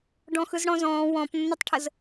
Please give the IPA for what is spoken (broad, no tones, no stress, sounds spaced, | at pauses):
ɖ ɔ̃ x ɯ z ɽ ɔ̃ z ɔ̃ː w ɔ̃ p nː ə tˤ ʈʰ ə z